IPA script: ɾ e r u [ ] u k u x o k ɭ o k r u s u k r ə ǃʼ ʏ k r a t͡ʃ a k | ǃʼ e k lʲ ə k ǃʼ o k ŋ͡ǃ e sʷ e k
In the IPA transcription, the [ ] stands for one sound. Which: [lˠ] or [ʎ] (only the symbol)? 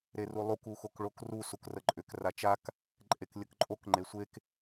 lˠ